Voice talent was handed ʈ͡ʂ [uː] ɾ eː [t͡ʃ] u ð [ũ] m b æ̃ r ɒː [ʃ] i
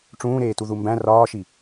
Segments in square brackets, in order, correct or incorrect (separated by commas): incorrect, incorrect, incorrect, correct